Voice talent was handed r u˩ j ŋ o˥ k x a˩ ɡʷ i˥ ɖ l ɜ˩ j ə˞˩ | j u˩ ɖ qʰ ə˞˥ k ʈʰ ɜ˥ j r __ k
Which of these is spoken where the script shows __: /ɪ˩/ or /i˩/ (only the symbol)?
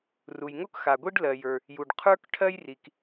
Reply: i˩